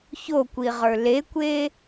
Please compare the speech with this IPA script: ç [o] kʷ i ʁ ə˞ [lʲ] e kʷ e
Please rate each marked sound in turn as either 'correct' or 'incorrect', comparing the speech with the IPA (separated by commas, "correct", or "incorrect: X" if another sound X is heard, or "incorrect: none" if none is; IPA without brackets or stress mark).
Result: correct, incorrect: l